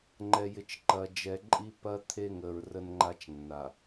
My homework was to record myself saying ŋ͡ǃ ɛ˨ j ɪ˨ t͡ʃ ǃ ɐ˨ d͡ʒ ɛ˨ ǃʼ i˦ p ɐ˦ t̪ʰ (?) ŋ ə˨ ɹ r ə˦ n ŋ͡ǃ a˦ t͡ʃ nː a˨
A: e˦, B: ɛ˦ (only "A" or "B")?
A